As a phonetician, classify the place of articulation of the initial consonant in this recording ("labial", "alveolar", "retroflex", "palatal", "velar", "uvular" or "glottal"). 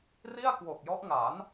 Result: alveolar